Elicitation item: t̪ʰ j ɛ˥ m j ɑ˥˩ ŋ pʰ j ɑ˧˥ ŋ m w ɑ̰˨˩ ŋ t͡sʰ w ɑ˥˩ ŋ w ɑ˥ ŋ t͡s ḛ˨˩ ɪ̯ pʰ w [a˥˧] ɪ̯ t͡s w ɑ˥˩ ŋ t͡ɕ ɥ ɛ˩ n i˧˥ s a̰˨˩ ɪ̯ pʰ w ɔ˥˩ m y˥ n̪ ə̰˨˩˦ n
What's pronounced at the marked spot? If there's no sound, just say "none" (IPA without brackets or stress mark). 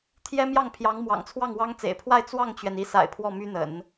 a˥˧